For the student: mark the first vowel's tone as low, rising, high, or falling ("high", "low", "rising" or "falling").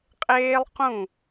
high